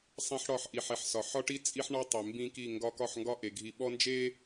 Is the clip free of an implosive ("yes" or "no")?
no